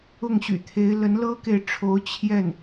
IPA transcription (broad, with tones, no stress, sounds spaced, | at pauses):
ʊ˥˩ ŋ ɕ y̰˨˩ t̪ʰ e˧˥ ɪ̯ l ə˧˥ n l ɤ˥ k e˨ ɪ̯ ʈ͡ʂʰ o˧˥ ʊ̯ t͡ɕʰ j ɛ˥˩ n